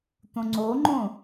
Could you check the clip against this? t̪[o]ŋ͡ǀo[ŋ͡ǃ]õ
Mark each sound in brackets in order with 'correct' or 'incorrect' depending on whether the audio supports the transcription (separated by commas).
incorrect, correct